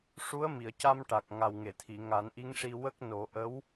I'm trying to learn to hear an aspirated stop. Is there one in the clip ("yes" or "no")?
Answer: yes